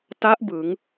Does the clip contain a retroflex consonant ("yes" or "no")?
no